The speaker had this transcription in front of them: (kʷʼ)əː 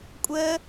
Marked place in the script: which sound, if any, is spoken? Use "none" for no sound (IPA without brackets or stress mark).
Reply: kʷʼ